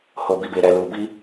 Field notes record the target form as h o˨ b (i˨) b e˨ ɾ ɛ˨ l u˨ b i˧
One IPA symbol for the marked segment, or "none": i˨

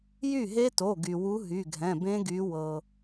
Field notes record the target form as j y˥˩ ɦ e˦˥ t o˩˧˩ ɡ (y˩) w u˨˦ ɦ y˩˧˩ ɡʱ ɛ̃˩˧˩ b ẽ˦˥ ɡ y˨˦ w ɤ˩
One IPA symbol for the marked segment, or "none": y˩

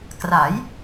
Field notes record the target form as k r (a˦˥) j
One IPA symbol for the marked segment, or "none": a˩˦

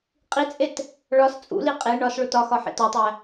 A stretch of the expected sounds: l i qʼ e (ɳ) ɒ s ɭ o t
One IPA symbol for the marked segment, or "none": ɳ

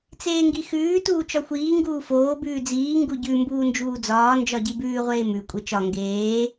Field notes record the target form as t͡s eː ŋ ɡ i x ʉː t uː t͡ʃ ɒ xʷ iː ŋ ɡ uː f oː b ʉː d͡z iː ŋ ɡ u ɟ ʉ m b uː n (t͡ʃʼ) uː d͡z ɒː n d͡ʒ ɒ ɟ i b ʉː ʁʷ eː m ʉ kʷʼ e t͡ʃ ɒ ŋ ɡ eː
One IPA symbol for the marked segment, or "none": d͡ʒ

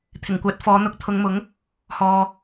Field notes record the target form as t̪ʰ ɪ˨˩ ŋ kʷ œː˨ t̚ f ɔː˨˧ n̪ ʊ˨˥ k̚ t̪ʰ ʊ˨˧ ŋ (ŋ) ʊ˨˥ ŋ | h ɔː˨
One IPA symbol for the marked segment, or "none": m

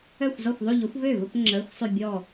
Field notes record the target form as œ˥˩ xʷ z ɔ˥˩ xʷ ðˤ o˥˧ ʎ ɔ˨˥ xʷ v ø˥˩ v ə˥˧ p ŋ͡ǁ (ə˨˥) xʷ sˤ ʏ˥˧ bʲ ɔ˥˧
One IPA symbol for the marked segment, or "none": ə˧˥˧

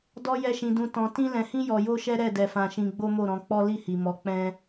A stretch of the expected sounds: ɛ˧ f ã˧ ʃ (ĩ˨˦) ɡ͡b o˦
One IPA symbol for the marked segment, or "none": ĩ˧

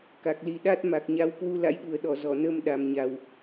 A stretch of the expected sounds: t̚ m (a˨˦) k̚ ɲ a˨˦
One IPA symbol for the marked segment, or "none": a˨˩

